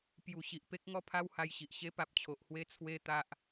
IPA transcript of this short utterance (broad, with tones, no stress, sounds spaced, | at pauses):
p j u˨˩ ɕ i˨ ʔ p e˦ k̚ ŋ ɔ˦ pʰ a˦ w h a˧ j ɕ i˨ ʔ ɕ e˦ p a˨ p̚ t͡ɕʰ o˨ ʔ h w e˦ t͡sʰ w e˦ t̪ a˦ ʔ